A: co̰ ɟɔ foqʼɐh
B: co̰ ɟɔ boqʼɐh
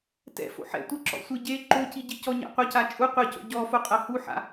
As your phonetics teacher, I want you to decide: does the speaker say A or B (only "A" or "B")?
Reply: A